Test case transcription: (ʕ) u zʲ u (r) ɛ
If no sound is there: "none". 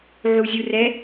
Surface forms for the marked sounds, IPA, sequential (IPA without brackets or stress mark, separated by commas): ʕ, r